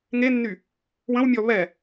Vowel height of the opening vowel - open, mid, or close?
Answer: mid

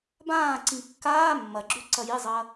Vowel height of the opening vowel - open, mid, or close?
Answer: open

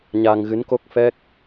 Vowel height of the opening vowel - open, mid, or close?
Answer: open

